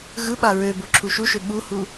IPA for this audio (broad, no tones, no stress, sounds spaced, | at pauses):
ɣ ɯ ɓ a ɹ ø b o ǁʰ u ʃ u ʃ ø ɓ u h u